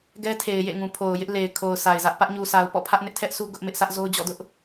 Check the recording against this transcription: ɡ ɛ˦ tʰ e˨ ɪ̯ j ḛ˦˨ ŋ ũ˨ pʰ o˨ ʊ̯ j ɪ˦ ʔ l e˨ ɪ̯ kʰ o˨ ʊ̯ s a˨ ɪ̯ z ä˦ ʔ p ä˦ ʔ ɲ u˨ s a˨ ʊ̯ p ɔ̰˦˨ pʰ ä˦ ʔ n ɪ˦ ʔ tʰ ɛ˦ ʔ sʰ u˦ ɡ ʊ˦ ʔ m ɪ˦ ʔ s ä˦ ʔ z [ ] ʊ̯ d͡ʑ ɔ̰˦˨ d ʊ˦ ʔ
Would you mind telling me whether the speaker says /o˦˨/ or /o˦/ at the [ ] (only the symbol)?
o˦